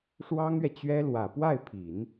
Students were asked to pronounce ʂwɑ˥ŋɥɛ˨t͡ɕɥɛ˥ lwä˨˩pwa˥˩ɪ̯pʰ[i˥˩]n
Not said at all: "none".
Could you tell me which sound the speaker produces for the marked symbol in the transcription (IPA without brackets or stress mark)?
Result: i˨˩˦